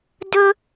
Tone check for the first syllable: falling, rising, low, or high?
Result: high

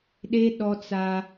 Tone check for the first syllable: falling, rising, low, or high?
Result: high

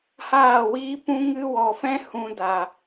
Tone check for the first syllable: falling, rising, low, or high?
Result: falling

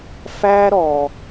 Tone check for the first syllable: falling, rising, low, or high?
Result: high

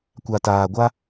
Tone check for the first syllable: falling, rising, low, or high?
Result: low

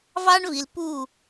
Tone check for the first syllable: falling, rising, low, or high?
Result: high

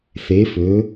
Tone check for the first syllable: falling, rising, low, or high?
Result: rising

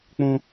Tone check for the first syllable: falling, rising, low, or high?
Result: high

